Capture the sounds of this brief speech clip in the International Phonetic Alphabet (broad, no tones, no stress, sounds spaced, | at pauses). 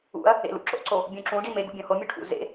ṵ ɐ̯ | ḛ l ṵ ǁ o̰ ǀ o | bʲ ũ ǁ ũ ɖ i m e ɡ ṵ bʲ õ h o mʲ u ʈʰ ṵ z ḛ